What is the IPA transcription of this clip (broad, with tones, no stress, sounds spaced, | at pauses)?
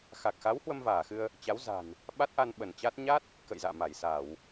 x a˨˩ k̚ x a˨˦ w h w ə˧ m v aː˧˩ x ɨ˧ ə̯ | t͡ɕ a˨˦ w z a̤˨˩ n | ɓ a˦˥ t̚ ʔ a˧ n ɓ ə˧˩ n t͡ɕ a˦˥ t̚ ɲ a˦˥ t̚ | k ə̰˧˨ j z a̰ː˧˨ m a˧˩ j s a˧˩˨ w